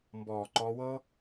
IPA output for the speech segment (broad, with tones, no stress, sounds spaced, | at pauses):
m b ɔː˨ ǃ ɔ˧ w ɤ˦